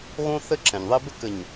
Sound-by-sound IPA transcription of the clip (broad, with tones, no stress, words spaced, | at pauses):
ɣõ˦θɘ˦ ǁɛ̃˨ɲðˤi˦ bɘ˦k ɘ˨ɲ